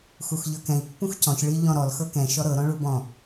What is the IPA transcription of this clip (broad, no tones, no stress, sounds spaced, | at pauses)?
x u x ʎ ɤ k ɛ̃ i̯ pː ũ x c ɔ̃ ç ɭ i ʎ ɔ̃ ɾ ɔ l x ɤ k ɛ̃ ʃ ɔ ɾ ɤ ɾ ɔ̃ ɭ u b ɔ̃